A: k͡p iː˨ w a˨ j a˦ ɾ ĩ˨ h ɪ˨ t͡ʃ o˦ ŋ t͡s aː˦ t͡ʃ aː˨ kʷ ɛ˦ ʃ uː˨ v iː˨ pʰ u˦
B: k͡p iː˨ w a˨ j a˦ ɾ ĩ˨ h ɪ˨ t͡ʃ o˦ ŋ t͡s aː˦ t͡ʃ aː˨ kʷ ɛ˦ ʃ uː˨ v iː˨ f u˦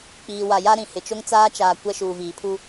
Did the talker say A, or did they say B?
A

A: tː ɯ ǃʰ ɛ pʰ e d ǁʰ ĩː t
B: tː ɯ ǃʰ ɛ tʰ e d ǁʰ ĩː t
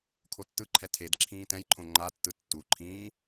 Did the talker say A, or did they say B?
B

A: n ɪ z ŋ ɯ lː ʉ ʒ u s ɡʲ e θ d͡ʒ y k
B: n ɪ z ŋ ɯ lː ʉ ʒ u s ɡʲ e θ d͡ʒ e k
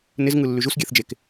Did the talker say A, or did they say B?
B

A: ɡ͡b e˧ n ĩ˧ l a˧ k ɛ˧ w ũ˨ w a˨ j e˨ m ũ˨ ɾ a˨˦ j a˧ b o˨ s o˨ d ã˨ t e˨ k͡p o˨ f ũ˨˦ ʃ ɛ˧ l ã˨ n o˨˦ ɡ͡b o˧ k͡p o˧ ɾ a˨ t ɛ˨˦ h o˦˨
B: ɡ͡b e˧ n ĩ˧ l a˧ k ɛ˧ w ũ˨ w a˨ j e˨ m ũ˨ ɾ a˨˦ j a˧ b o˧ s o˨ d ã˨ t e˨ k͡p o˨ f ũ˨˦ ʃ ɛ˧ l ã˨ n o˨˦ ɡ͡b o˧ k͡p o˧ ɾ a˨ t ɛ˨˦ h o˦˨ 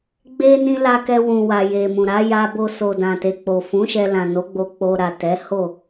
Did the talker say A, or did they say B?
B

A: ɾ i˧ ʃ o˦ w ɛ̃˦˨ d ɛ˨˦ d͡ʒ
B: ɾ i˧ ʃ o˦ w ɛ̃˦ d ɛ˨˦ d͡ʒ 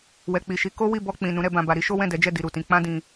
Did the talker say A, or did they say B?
A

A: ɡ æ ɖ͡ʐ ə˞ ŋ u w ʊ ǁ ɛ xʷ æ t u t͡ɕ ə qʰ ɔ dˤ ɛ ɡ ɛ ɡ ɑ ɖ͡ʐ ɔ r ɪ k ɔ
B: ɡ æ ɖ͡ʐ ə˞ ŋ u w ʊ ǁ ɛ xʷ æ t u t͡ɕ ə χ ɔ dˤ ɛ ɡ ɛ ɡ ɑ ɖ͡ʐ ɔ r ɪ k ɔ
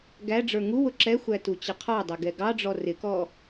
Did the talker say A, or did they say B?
A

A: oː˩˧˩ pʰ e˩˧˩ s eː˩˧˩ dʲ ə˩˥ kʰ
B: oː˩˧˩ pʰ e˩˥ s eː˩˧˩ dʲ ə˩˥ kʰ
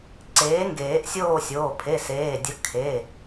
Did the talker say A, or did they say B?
A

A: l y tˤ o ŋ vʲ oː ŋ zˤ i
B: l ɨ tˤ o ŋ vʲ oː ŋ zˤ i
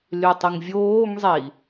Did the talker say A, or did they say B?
A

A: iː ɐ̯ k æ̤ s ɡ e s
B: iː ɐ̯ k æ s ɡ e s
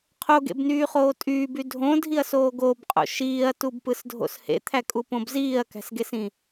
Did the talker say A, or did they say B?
A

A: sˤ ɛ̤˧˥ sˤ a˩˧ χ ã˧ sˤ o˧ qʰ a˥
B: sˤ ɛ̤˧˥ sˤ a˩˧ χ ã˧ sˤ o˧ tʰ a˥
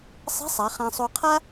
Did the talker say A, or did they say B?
A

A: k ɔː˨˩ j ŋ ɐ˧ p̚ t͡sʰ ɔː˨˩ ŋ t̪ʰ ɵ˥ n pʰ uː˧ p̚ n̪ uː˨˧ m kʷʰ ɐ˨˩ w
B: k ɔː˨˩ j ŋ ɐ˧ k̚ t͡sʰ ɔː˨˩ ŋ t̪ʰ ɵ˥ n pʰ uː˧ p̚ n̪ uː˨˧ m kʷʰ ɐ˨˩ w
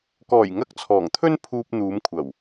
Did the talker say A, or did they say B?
B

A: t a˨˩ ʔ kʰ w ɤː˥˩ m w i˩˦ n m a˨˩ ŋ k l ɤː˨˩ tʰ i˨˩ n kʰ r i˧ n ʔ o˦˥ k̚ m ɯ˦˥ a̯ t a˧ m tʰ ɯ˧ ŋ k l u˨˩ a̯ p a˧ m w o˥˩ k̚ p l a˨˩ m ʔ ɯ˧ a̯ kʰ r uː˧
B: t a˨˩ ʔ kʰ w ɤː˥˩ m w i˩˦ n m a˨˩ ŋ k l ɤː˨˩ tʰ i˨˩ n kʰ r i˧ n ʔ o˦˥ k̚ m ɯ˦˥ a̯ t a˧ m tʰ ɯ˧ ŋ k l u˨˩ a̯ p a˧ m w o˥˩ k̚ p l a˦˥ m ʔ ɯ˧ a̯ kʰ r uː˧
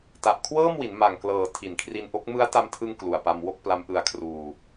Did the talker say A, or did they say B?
B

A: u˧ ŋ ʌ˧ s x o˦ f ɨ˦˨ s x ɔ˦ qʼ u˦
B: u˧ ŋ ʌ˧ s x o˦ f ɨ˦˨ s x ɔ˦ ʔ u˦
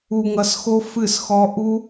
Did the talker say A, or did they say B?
B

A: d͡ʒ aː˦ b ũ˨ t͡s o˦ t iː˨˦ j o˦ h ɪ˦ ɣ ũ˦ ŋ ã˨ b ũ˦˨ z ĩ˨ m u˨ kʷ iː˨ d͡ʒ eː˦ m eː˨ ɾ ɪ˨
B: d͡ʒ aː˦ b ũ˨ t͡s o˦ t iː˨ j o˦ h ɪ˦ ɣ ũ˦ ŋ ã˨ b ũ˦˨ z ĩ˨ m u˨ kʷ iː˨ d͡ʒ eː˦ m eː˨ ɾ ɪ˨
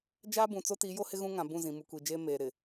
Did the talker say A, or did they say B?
A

